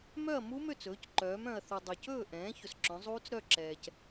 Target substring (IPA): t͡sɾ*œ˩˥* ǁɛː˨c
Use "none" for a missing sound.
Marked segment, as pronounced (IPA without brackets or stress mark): œ˥˩